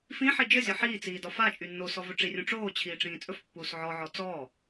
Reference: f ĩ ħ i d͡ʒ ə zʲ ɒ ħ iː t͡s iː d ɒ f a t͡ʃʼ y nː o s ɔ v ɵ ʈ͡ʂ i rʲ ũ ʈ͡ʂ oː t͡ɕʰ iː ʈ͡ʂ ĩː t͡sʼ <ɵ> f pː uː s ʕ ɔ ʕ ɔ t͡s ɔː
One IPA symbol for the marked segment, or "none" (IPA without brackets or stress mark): ɵ